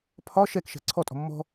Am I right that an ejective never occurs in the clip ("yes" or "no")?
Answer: no